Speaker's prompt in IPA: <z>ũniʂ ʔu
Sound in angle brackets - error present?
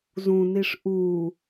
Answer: no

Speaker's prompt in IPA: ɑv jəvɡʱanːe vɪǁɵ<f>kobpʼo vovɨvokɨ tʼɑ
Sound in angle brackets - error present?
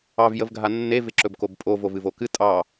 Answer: yes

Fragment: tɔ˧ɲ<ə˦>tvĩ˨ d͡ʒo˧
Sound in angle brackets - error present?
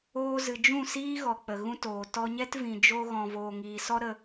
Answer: yes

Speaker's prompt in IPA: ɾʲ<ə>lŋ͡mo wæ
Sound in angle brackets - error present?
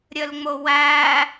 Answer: no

